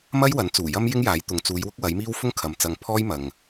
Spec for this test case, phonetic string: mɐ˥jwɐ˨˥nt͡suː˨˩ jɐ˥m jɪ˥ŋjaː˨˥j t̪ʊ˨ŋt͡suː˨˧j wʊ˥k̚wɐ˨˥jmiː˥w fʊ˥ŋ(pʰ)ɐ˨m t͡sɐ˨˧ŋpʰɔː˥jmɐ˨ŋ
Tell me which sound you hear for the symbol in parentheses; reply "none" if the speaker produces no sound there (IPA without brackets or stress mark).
kʰ